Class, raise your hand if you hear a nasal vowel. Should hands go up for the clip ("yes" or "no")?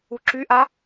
no